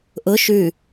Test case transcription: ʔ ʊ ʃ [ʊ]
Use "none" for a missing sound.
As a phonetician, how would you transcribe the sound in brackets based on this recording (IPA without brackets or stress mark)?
ʉ